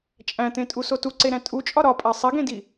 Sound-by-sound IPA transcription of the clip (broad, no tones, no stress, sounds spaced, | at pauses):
t͡ʃʼ æ̃ t̪ ẽ tʼ u s o t u ǀ e ɾ æ̃ tʼ u t͡ʃʼ ɒ ɾ ɒ pʼ æ sˤ i ɡ ẽ d i